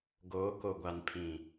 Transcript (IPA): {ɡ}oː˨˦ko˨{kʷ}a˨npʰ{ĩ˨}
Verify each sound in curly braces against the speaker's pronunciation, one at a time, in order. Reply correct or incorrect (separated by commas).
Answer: correct, incorrect, correct